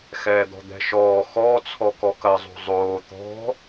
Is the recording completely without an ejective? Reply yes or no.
yes